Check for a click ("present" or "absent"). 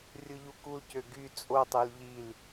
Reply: absent